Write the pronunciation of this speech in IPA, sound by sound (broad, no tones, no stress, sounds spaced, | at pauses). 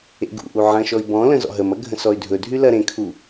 ḛ ɡ ṵ ʔ u ʕ ɐ̃ ʃ ɔ i̯ b ɔ̃ l ə̃ z ɔ̰ ɦ ə m ɐ ɡʱ ə̃ s ɔ y̯ dʱ ɵ dʱ y l ɐ ɾ ẽ kʰ u